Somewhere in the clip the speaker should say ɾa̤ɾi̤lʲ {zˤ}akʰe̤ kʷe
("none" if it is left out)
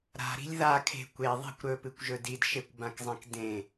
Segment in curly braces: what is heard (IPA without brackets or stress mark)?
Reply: ð